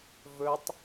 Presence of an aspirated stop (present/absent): absent